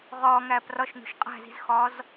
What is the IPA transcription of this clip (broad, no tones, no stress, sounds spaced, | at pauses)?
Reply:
ʁ ɒː ŋ æː p r ɒ ʃ n o̤ ʃ qʼ æ̤ z i̤ z x ɒː z